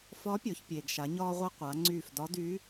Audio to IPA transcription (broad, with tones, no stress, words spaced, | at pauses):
fɒ˧˥pʲɔ˩˧çpʲeː˩ɡ ʃa˩˧ɲɒː˧ʁʷe˧ qʷa˩˧ ŋ͡ǀyː˧˩fdɒ˧˥dy˧˥